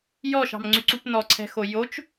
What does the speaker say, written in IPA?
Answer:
jɔʃɑ̤mŋ͡ǀyǀup nɔǀʰɛ̤xo jot͡ʃ

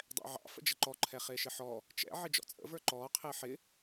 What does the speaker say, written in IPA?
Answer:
dˤɛ̰ʕɑ̰ fə̰d͡ʒəǃɔ ǃʰɛχɪːʃɪħɔ | t͡ʃɛ̰ ʕɪd͡ʒɔ̰t͡sʼə̰ və˞ǃɔː qʰɪːħɪ

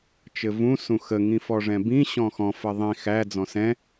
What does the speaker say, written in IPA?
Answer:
t͡ʃɘvũ sũxəŋĩ fɔʐɛ̃bĩ ɕɔ̃xɔ̃ fɘðˤĩ xæd͡zɔ̃ sɛ̃

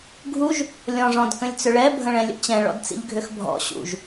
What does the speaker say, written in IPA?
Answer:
ɡʱuʒ | lʲɔ̃ʐɔ̃d kə̃lʲt͡sʏɭɛ bʱə̃ɭɛ̃lʲə̰t͡ɕɛ̃ ɭɔ̰dt͡sḭʎɡʱʏxbʱɔ̰ ɕṵʒ

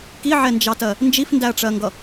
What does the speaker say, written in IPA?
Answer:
kiʕɛnd͡ʒɑtɜ | nd͡ʒifndæɐ̯ʈ͡ʂɜŋɡʌ

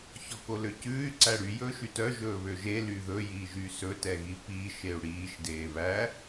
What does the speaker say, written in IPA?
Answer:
çɔkoløcʉːy̯ ǀæɽy jɵːʃytœ ʒɵːβøʒe lyðɵ jiːʒysɵ tɛɣipiːʃ eu̯ɽiːʃ deːβæ

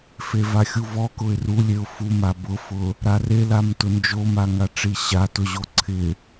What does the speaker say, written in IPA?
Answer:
fevaxʲuvɔ kʊɪ̯rulʲeʊ̯ fuma bʊfʊ | ɾarelam tʊnd͡ʒoma ŋaʈ͡ʂiɕa tʊʑoǀʰɪ

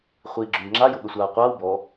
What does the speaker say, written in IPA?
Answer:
χʷiːɡ͡ǁʊɲŋ͡ǁa jʊɠəsʷaːqʷaːw bɔ

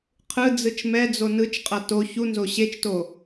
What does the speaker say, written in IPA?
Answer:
qʰɯ d͡zɯt͡ʃmɛd͡zo nɯt͡ʃqʼʌ to çunzo ɕet͡ʃto

